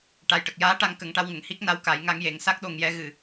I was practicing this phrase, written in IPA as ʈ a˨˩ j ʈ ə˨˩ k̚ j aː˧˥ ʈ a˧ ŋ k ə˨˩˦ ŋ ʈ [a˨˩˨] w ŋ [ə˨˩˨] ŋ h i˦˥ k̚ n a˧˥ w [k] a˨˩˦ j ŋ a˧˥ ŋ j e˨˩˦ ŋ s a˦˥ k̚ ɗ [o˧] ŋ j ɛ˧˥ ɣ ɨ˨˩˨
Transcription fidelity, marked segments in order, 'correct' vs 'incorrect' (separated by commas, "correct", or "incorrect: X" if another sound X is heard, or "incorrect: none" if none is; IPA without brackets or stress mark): incorrect: a˧, correct, correct, correct